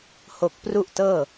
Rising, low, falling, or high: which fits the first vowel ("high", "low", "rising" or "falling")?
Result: low